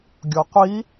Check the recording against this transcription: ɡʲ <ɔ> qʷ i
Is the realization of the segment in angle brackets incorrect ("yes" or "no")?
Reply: no